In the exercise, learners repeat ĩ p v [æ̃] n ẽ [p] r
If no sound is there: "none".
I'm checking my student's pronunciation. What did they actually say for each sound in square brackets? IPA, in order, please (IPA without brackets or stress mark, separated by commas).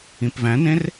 æ̃, none